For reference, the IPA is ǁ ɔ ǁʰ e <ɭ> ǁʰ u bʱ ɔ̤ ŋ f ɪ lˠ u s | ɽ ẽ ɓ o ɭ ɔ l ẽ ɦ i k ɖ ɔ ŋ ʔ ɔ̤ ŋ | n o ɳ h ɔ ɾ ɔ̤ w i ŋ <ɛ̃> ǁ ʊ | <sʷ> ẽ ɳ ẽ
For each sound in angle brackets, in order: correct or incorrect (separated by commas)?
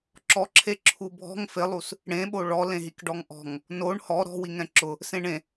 incorrect, correct, incorrect